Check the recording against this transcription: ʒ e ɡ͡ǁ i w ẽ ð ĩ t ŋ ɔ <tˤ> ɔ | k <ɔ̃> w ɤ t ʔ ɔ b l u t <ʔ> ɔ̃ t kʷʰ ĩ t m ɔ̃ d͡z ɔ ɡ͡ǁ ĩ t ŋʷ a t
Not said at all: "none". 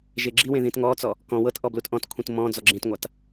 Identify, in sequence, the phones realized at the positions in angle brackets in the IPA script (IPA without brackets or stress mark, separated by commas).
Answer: t͡s, ɔ̃, ʔ